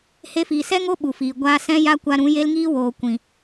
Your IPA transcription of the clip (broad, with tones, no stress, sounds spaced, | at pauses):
h e˧ f iː˨ s ɛ˦ ŋ o˦ ɓ u˨ f iː˨ ɡʷ aː˧ s ɛ̃˦ j a˦ kʷ a˧ ɾ ũ˨˦ j e˦ l ŋ iː˦ w oː˨ kʷ ĩ˨